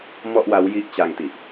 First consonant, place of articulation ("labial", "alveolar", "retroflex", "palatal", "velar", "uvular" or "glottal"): labial